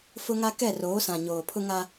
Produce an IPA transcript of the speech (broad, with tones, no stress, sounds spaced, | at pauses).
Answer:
f ʊ˦ ŋ a˦ k ɛ˦˨ r oː˨˦ s ã˨ ɲ oː˨ pʰ ʊ˦ ŋ a˦